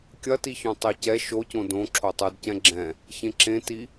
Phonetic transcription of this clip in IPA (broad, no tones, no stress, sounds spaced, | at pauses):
kʲ ɐ t i ç õ tˤ i c ɛ ʃ o c õ d õ ǁʰ o tˤ ʉ d c ɛ̃ ɡ͡ǁ ɛ̃ | ç ẽ ǁ ẽ t i